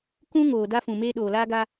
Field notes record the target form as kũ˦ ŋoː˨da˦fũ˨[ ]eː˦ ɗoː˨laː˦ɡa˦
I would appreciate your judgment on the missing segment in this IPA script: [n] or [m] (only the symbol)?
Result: m